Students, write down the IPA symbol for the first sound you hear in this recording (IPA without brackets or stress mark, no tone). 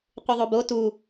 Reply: qʷ